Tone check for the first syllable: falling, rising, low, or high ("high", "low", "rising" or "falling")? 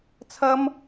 high